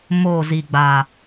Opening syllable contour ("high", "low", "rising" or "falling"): falling